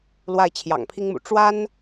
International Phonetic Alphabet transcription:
lwa˥˩ɪ̯t͡ɕʰjɑ̰˨˩ŋpʰi˥ŋmṵ˨˩ ʈ͡ʂwa˥n

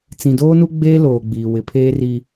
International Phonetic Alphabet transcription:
t͡sĩ˨doː˦nu˦ ɡ͡beː˦loː˨ɡ͡biː˨ wɪ˨pʰeː˦ ri˦

